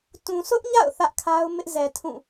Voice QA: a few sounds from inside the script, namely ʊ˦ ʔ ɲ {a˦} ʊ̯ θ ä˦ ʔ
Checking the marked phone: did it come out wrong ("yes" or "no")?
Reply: yes